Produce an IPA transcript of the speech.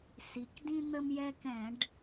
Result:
si˩kdĩ˦ n̪ə˦mjɛ˦kɛ̃˧˩˧ɖ

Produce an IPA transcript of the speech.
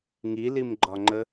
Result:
ŋilimɡ͡ǃɒŋ͡ǃə

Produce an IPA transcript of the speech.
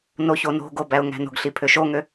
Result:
noçono̤ɡo bæʊ̯ŋæ̤no̤ɡɬi pʰøʃoŋø

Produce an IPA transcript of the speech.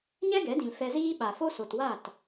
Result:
ɲɛ˦ɡɛ˨˦dĩ˨l fɛ˧ziː˦ ɓa˨fo˦so˨twa˦˨t

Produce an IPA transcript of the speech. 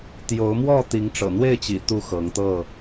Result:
t̪jo˨˦ʊ̯mwɔ˥˨ t̪i˨˦ŋʈ͡ʂɤ̰˨˩n̪we˥˨ɪ̯t͡ɕḭ˨˩ t̪u˥˨xɤ˨˦ŋt̪ɤ˥˨

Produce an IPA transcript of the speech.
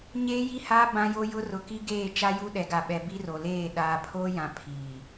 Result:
ɲeː˦ji˦haː˦ bã˦jo˦jʊ˦ rʊ˨ki˦ɡeː˦˨ t͡ʃa˦ju˦ ɗɛ˨ɡa˨ɓɛ˨ bi˦ro˨leː˦˨ ɗaː˨pʰoː˦jã˨ pʰi˨

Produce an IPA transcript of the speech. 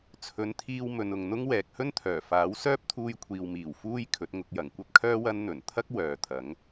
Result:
t͡sʰɵ˨˥nt̪ʰiː˧w mɵ˨nʊ˨ŋn̪ʊ˥ŋ wɛː˨k̚hɵ˥nt̪ʰœː˨˩faː˨˥w sœː˥p̚t̪ʰuː˧jkʷʰiː˨wmiː˨˩w fuː˥j kʰɵ˨˥t̚ŋʊ˧k̚jɐ˨˩ŋ kʷɐ˥p̚kʰœː˥ wɐ˥n n̪ɵ˨˩nt̪ʰɐ˥k̚ wœː˨t̪ʰɐ˨˥ŋ

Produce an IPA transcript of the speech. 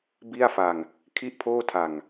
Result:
bi˥˩a̯fa˧ŋ | kʰi˥˩ʔpʰoː˥˩tʰa˨˩ŋ

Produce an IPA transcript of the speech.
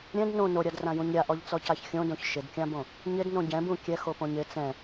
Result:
ɾʲɛ̃d nõ noɾʲadrãjũɲ ɾʲaʔɔʎt͡sɔcaç xʲõdõç ʃɪdkʲãbõ | ɲɪdnõ ɟɛ̃bũ kʲɛxopõɲ ɪ t͡sɛ̃

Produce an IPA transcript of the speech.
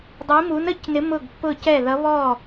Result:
dˤi˧˥mu˧˥nə˧˥cnɪ˧˥ mʊ˥˨ɡpːʊ˥˨cɛ˥˨ðʌ˧˥ βɔ˥˨

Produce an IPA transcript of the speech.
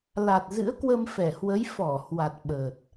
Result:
la˨˩t̚zɨ̰˧˥ə̯kwə˧m fɛ˧˩hwə˨˦j fɔ˧˩ hwa˨˩t̚ɓəː˨˩t̚

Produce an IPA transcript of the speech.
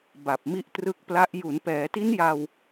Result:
ba˨˩p̚mi˦˥ʔtrɯ˦˥k̚pla˦˥ʔ ju˩˦npɛː˩˦ti˦˥nja˧w

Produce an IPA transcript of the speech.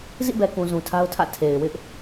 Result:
zḭ˦˨bɛ˨kũ˨ zũ˨tʰa˦ʊ̯tʰä̰˦˨ tʰe˨ɪ̯ wɪ˦ʔ

